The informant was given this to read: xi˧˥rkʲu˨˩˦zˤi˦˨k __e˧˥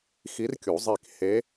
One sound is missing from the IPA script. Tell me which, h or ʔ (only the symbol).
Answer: h